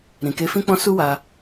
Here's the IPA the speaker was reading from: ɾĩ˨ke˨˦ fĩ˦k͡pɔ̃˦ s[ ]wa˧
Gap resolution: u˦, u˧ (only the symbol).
u˦